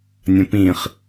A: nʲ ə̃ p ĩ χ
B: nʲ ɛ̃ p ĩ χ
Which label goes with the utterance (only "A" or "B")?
A